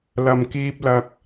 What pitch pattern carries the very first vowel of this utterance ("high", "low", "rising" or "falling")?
low